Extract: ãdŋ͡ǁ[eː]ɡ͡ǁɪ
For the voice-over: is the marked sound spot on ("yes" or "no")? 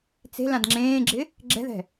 no